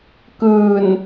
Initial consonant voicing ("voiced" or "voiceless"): voiceless